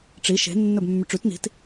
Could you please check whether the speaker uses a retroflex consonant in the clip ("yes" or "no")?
yes